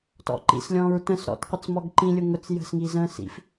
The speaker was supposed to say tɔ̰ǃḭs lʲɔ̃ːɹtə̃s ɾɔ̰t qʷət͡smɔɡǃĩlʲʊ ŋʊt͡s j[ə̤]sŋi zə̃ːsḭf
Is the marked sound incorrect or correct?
correct